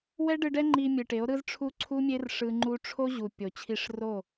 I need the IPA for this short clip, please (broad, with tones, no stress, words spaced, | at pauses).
wɛ˦ɖɯ˧ɖɛ˦ ŋ͡ǃi˧ mʲɯ˨ʈe˨˦o̯ ɾɯ˦zʈ͡ʂʰu˦ ǀʰu˦mʲe˦r ʂɯ˧ ŋ͡ǃu˧ʈ͡ʂʰo˦ ʑu˨ pʲo˨t͡ɕʰi˧ʂro˦˨